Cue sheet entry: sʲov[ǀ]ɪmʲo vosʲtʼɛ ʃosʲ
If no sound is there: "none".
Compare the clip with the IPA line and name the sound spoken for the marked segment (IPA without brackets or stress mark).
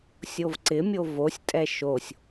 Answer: ǀ